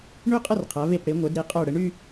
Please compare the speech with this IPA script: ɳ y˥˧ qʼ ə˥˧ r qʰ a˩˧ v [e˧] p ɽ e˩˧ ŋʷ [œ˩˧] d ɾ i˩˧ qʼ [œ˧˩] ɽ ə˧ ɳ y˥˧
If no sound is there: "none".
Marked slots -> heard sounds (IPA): e˧˩, œ˩˧, œ˧˩

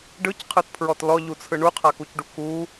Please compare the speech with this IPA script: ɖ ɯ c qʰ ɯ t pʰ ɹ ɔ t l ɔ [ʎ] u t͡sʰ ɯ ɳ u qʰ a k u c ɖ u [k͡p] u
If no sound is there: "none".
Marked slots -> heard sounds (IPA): ʎ, k

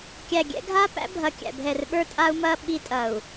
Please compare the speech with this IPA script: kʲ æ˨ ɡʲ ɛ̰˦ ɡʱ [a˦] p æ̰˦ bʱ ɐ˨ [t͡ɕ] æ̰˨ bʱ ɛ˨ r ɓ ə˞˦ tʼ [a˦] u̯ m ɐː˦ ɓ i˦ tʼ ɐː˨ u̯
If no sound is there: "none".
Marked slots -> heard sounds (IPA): a˦, kʲ, a˦

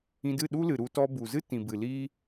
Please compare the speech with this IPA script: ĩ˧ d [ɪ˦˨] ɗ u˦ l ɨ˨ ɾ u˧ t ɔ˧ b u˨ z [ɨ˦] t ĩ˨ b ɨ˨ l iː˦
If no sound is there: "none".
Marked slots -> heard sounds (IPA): ɨ˦˨, ɨ˦

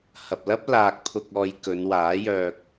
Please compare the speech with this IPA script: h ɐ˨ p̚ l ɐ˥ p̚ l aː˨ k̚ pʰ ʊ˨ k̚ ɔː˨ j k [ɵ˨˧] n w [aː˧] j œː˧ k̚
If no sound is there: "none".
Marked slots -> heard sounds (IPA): ɵ˨˧, aː˨˥

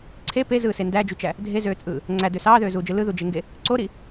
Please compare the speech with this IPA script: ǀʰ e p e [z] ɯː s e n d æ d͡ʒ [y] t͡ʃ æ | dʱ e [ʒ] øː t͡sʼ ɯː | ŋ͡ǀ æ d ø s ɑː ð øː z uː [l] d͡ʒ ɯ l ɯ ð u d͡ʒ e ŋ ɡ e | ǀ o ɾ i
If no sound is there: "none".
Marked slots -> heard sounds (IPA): z, y, z, none

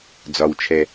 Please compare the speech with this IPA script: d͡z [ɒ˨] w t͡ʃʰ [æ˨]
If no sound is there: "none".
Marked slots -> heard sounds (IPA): ɒ˨, ɛ˨

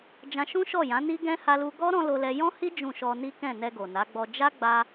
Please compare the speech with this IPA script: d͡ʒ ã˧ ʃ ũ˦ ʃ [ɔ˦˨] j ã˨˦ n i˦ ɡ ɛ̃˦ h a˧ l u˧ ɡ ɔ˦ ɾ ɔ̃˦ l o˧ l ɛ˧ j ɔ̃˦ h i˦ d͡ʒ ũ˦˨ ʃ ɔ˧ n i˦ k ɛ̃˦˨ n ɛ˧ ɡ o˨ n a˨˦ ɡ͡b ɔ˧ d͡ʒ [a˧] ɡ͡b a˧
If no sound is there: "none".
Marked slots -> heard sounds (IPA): ɔ˦˨, a˦

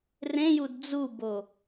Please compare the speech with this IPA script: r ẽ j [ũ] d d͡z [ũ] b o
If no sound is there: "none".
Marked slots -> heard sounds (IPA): u, u

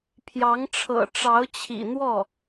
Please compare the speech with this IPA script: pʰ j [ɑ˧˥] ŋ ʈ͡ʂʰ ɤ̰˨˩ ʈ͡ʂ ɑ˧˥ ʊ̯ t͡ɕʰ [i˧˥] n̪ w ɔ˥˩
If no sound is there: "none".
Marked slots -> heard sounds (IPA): ɑ˧˥, ḭ˨˩

